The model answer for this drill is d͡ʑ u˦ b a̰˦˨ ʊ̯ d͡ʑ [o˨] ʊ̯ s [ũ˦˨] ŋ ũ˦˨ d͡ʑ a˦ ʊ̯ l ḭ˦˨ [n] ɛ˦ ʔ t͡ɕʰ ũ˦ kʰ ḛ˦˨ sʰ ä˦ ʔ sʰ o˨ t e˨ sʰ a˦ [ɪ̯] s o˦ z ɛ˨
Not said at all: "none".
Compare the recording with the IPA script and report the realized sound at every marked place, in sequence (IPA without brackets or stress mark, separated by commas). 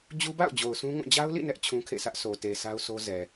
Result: o˨, ũ˦, n, ʊ̯